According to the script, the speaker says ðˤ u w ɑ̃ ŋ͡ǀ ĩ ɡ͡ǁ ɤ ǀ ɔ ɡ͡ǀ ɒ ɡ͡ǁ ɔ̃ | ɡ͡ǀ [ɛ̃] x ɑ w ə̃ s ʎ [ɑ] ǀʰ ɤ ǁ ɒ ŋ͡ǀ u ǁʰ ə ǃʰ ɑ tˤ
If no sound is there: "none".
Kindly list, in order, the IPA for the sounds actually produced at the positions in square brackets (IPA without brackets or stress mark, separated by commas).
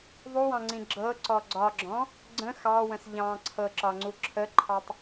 ə̃, ɑ̃